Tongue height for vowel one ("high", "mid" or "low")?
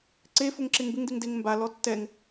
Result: mid